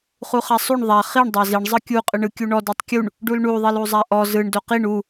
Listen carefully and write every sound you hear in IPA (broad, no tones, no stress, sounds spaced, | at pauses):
χ u χ a sˤ u ɳ ðˤ a χ i ɳ dˤ a z i ɳ zˤ ɯ kʲ u qʼ ɯ ɳ ɯ kʲ u ɳ ɔ d u tˤ kʲ u ɳ | ɖ u l ɳ u ðˤ i l u zˤ a ʔ ɔ z ɯ ɳ d o q i ɳ u